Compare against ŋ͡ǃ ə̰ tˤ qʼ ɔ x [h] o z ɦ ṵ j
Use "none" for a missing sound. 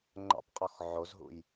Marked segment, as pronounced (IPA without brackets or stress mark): ʕ